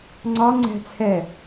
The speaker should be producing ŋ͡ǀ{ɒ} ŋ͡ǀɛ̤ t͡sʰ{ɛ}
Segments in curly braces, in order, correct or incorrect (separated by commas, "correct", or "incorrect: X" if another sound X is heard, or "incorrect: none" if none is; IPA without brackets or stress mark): correct, correct